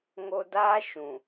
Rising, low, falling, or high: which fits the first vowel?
high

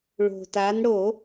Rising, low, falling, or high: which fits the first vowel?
low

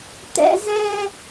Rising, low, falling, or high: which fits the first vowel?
high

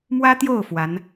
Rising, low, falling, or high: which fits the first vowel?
high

